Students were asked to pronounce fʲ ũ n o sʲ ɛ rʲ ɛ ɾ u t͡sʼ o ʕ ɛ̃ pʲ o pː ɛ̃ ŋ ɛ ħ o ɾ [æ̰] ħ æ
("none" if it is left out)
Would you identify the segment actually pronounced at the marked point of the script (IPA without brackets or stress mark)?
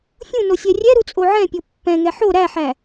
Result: æ